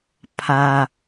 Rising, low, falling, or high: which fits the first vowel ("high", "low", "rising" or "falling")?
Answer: low